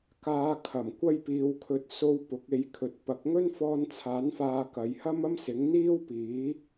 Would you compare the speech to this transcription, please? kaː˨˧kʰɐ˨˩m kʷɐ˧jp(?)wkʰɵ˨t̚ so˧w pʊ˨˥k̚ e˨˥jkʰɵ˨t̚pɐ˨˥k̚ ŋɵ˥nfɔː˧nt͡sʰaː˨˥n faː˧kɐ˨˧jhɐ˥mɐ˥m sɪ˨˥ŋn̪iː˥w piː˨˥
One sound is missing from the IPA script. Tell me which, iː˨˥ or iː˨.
iː˨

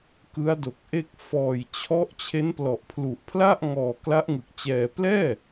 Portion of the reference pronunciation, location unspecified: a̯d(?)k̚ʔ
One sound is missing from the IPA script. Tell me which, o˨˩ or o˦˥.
o˨˩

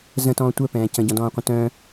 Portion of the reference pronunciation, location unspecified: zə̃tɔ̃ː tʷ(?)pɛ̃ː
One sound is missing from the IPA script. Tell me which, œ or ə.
œ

